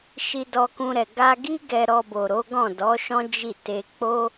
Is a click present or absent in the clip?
absent